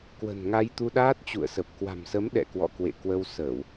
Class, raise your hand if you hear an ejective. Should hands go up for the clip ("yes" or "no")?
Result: no